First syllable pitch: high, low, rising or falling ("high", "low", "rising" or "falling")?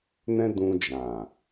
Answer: high